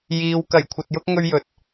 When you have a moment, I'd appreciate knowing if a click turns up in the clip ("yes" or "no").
no